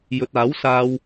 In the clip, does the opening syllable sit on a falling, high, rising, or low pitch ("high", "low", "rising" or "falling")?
low